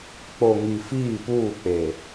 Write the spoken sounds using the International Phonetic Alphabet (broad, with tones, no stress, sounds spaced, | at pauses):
k͡p o˨ ŋ i˨ f iː˦˨ p uː˦˨ k͡p e˨